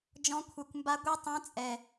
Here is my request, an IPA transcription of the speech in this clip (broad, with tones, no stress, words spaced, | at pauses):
d͡ʒɔ̃˦˥ kʷʰɛ˧kʷmba˦˥ ɡʷi˦˥tˤɛ̃˦˥t͡sʼɛ˧